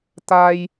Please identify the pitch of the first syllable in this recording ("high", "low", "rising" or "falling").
high